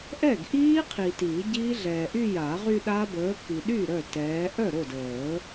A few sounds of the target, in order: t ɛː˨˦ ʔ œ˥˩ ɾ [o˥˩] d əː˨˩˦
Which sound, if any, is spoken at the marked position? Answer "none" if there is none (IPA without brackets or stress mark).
o˥˩